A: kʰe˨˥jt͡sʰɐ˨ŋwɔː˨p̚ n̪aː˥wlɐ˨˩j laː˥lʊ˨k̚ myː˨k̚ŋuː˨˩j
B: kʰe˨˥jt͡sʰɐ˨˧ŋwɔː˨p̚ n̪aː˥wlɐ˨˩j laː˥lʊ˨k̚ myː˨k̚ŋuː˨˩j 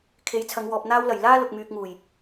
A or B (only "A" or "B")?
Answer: B